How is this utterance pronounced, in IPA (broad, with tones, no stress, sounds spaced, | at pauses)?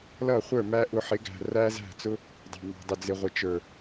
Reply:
l ʌ˦˨ χʷ ə˞˦˨ m æ˦ ʔ ʊ˧ ħ ɪ˨˦ ɡ æ̤˨ r æ˦ z æ̤˦˨ t͡s ʊ˦ | dˤ ɑ̤˨ m ɑ̤˨ dˤ ɪ˨ d͡z ɪ˨ ʁʷ ɪ˨ t͡ʃ ə˞˨